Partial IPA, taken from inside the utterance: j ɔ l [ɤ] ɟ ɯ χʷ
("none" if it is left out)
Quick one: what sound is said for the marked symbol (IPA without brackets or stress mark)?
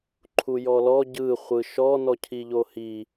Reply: ɔ